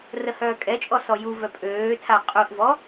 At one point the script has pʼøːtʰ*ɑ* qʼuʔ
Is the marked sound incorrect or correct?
incorrect